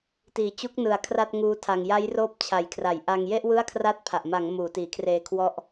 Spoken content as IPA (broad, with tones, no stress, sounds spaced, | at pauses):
t iː˨˩ t͡ɕ u˦˥ k̚ n ɯ˨˩ a̯ kʰ r a˥˩ t̚ ŋ uː˦˥ tʰ a˧ ŋ j a˦˥ j r oː˥˩ p̚ t͡ɕʰ a˨˩ j kʰ r a˩˦ j ʔ a˧ ŋ j e˥˩ ʔ w ɯ˥˩ a̯ kʰ r a˥˩ t̚ pʰ a˨˩ ʔ m a˩˦ ŋ m uː˩˦ t iː˩˦ kʰ r eː˧ kʰ w ɔ˦˥ ʔ